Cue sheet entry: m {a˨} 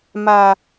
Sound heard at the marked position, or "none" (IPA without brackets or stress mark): a˨